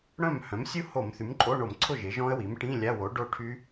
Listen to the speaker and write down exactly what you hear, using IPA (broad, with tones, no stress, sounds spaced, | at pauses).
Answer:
ɽ œ̃˥˩ m h œ̃˩˥ m sʲ u˦˥ h o˧˩˧ m θ y˩˥ m ǃʼ o˧˥˧ ɳ o˧˩˧ m ǀʰ ʊ˥˩ ʒ ɪ˩˥ ʒ ɔ̃˦˥ ə̯ w i˩˥ m ʈ ĩ˧˥˧ lʲ a˧˥˧ w o˩˥ ɖ o˥˩ ʈʰ y˦˥